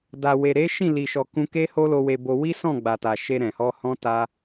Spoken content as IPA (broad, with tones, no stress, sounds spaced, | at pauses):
d a˨ w e˨ ɾ e˨˦ ʃ ĩ˦˨ l i˨ ʃ ɔ˨ k ũ˧ k e˦ h o˦ l o˧ w e˧ b o˧ w i˦ s ɔ̃˦˨ ɡ͡b a˨ t a˨ ʃ e˧ ɾ ɛ̃˨ h ɔ˧ h ɔ̃˦ t a˦